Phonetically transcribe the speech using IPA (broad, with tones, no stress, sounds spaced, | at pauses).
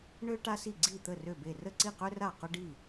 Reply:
ɳ ø˥ ʈ a˥ s i˥˨ ɡ͡ǀ i˥˨ t̪ ə˥˨ r ø˥˨ b e˥˨ r ə˥˨ ǀ i˥˨ q ø˥ r a˥˨ q ʊ˥ ɖ i˥˨